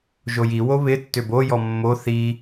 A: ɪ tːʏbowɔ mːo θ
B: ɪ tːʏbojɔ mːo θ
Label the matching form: B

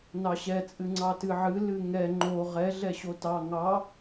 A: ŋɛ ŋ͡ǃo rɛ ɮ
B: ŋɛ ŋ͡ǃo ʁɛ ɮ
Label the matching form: B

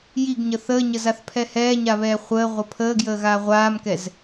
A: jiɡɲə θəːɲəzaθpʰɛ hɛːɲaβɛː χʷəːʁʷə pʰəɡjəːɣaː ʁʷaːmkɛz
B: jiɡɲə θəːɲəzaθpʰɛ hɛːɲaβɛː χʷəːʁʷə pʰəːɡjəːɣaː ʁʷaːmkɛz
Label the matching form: B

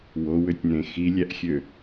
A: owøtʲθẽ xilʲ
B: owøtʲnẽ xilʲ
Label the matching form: B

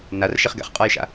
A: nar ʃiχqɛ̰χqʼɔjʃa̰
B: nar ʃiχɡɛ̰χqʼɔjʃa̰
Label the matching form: B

